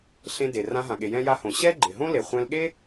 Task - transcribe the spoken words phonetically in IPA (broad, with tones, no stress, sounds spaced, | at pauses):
ɬ ẽ˧ d e˩ r ã˧ ɦ ã˩ ɠ e˩ j ɛ̃˧ j a˧ h õ˩ ɕ ɛ˥ ɡ͡ǃ ɪ˩ ɦ õ˥ l e˩ χʷ ɛ̃˧ l ɠ e˥